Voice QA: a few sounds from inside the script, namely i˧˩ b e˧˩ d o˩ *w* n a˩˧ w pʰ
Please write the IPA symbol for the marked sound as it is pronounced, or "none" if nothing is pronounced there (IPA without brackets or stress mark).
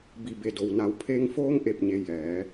w